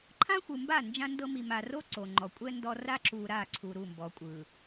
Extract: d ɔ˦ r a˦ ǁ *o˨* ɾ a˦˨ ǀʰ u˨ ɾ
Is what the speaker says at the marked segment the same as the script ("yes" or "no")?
no